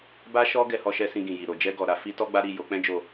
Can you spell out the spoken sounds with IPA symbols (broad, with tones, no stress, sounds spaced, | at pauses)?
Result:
b a˦ ʃ ɔ˦ ɡ ɛ˧ h ɔ˧ ʃ ɛ˧ s ĩ˧ ɡ ĩ˨ j i˨ ɾ o˨ d͡ʒ ɛ˧ ɡ ɔ˨ ɾ a˧ f i˦ t ɔ˦ ɡ͡b a˦ ɾ i˦˨ j o˨˦ k͡p ɛ̃˦ d͡ʒ o˦˨